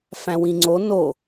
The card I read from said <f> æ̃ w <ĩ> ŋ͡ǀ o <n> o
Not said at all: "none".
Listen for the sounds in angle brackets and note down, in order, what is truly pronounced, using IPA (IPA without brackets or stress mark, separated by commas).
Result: f, ĩ, n